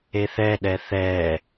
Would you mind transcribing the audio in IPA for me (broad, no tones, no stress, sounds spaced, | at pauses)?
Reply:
e θ ɛ ɗ ɛ θ ɛ